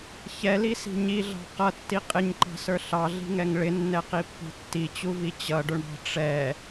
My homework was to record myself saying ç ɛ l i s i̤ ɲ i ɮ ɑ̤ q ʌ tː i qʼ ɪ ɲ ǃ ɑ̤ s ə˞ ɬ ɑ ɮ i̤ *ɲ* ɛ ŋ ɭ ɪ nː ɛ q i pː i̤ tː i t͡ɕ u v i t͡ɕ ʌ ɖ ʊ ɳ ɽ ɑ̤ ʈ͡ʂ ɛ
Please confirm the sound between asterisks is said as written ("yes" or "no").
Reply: no